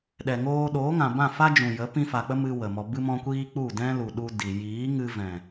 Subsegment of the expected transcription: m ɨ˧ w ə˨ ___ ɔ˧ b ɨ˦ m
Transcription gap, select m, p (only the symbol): m